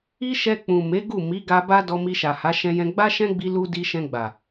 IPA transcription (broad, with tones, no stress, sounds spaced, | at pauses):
i˦ ʃ ɛ˧ k͡p ũ˨ m e˨˦ ɡ u˦˨ m i˨˦ ɡ a˧ b a˦ d ɔ˧ m i˧ ʃ a˨ h a˨˦ ʃ ɛ̃˧ j ɛ̃˧ ɡ͡b a˦ ʃ ɛ̃˦ ɡ͡b i˧ l u˧ d i˧ ʃ ɛ̃˧ ɡ͡b a˨